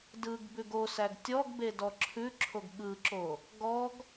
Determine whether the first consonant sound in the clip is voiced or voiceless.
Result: voiced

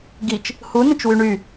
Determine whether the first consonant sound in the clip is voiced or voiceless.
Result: voiced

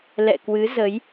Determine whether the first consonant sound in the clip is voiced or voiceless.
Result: voiced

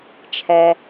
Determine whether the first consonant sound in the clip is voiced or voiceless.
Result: voiceless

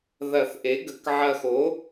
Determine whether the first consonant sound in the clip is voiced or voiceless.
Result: voiced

